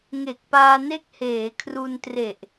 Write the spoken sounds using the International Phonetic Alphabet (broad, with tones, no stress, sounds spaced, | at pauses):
ŋ e˨˩ k̚ p aː˧ n e˦˥ k̚ h eː˩˦ kʰ r u˧ n t r e˨˩ ʔ